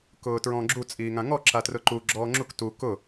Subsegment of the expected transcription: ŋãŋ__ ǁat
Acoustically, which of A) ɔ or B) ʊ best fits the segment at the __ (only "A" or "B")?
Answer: A